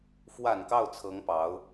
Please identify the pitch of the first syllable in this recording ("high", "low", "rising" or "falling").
low